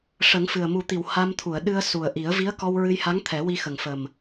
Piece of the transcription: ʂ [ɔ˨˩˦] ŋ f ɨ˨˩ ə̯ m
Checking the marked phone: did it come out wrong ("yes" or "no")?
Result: yes